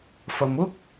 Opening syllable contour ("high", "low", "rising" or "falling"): low